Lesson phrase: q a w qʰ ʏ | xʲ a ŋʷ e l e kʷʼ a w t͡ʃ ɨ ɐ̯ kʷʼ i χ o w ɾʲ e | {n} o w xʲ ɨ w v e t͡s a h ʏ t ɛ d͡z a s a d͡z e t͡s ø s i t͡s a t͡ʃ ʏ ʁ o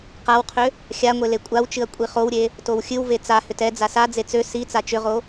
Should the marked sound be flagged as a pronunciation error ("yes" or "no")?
yes